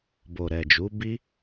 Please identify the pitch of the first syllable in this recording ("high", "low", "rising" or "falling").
low